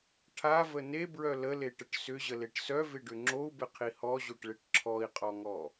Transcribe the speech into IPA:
ʈʰavə nebɹœ ləleʈəʈ sʏʑəleʈ sœvɪɖʏ ŋ͡ǁou̯bɪqʰi hɔʑoʈɭeʈ ǁʰɔi̯qʼɔŋɔ

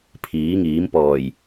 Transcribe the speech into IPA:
pʰiː˨˥ŋiː˨˥m pɔː˨˩j

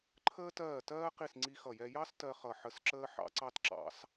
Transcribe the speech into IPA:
ǃʰəː˥tɜː˥˩tɜː˥qi˥˩s ŋ͡ǀi˥xʌ˥˩jɛ˥ jɑ˥s tɜ˥χʌ˥˩ ħə˥˩sǁəː˥ ħɑ̰˥ ǀɑ˥tǁɑ̰˥s

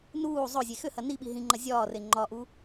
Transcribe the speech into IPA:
nuː zˤɵzʲe xʏhɐ niɓi ɦĩŋ͡ǃɐ zʲɒːre ŋ͡ǃɒʔu

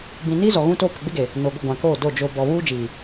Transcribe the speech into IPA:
bĩ˨ni˦zɔ˨ ɣũ˦toː˦ pɪ˨ɡ͡bɪ˦ɡe˨ | noː˨ɡʷɪ˦˨ ɡʷã˨koː˦˨do˦˨ d͡ʒo˨ bɔ˨βuː˦ d͡ʒiː˨

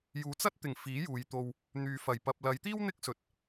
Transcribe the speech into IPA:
juː˨˧t͡sɐ˥t̚t̪ɪ˨˩ŋ fiː˨˥juː˨jt̪o˧w | n̪yː˨fɐ˨˩j pɐ˨p̚lɐ˨˧j t̪iː˥w n̪ɪ˥k̚sɵ˨t̚

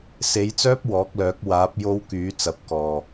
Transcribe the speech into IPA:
se˨˥jt͡sœː˥p̚ wɔː˨˥k̚lœː˨˥k̚ waː˨˥p̚ jo˥wkyː˨˥ t͡sɐ˨˥p̚kɔː˨

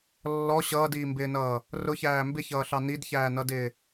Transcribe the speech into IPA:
lːɔ ɕʌːdiːmbɪːnʌː | rʊçæː mbɪçʌːɬɑ nidçæːnʌdɪː

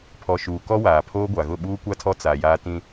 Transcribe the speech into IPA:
pʰɔ˨ʃuː˨ kɔ˦waː˨pʰoː˦ɡʷa˨ ɣʊ˦˨ɓuː˦kʷa˦tʰɔ˦ t͡sa˨jaː˦ tĩ˦

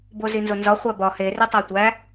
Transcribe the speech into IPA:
bozinzonzɒ χʷæbɒ he ritˤætʷæ

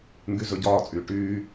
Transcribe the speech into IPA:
ŋɡyzɵɟɒːt͡sʼyː ʈyː

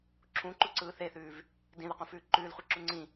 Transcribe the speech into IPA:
ǁʰũǃuǀɯː θeθʉːv | dĩðɪqũfʉː ǃʉːlχʷiǁu ŋ͡ǀĩ

